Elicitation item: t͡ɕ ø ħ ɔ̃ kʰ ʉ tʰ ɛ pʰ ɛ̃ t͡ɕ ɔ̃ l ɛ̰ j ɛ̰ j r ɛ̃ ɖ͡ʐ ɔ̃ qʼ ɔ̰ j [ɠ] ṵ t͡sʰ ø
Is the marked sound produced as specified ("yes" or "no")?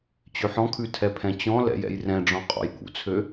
yes